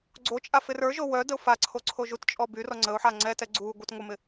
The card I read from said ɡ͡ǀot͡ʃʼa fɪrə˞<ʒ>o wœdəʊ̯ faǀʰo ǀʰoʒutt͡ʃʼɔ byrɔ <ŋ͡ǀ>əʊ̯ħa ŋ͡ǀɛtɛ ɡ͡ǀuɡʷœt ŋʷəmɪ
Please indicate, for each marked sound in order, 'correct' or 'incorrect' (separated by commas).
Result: correct, correct